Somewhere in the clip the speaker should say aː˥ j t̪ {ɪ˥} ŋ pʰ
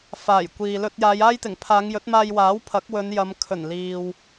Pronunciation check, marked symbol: incorrect: ɪ˨˩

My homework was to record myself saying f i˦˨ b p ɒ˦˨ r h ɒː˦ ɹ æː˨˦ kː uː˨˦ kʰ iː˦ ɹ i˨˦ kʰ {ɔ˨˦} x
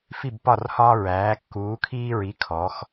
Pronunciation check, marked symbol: correct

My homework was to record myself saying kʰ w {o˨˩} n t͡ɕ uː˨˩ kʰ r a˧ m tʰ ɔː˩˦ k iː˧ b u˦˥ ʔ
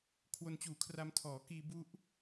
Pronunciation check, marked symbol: incorrect: o˧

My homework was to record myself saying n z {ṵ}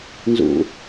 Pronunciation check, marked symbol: correct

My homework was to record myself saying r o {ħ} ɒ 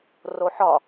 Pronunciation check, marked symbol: correct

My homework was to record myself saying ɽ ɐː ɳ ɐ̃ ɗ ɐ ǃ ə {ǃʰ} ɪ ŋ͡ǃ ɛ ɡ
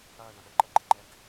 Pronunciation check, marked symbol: incorrect: ɡ͡ǃ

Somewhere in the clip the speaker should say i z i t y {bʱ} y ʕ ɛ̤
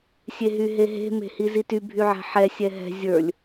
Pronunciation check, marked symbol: correct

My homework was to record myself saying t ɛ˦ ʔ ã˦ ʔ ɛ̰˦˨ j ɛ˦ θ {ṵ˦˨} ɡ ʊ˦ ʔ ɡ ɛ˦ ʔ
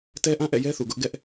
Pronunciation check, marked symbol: incorrect: u˨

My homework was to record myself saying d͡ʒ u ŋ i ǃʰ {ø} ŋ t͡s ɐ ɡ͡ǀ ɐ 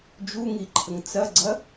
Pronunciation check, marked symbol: incorrect: ə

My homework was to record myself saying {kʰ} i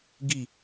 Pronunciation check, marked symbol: incorrect: ɡ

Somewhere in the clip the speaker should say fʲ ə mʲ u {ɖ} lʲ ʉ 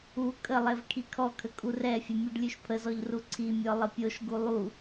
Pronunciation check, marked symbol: correct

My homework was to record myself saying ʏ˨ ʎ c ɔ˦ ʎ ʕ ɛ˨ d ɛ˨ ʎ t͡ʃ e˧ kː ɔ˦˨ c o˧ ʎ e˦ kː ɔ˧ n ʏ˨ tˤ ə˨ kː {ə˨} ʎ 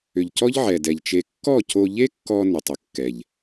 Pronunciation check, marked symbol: incorrect: ɛ˨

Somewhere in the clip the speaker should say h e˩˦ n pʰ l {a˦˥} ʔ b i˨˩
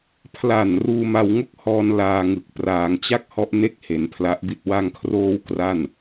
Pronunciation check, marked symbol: correct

